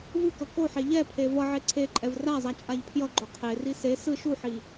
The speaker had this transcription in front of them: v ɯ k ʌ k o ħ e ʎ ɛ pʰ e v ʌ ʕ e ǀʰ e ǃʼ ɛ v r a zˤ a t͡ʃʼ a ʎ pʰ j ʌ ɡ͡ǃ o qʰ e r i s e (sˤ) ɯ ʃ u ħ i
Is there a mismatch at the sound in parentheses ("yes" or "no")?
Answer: yes